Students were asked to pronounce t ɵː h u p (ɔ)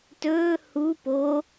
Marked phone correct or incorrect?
incorrect: o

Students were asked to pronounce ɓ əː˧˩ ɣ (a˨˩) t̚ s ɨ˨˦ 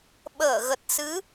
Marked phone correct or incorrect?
incorrect: ə˨˩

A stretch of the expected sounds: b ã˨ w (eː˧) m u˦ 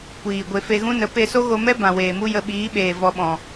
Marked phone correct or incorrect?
incorrect: eː˨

